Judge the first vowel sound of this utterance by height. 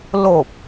mid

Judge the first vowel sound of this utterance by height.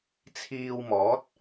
high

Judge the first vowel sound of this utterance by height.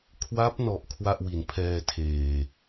low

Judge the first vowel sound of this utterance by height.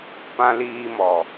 low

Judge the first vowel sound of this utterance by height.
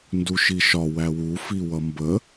high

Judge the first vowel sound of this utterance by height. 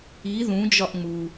high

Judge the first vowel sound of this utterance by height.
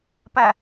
low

